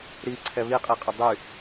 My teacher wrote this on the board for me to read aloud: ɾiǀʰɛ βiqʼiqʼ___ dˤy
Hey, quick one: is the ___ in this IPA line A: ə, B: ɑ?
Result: A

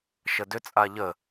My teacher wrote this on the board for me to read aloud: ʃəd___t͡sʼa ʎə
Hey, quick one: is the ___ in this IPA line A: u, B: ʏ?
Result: B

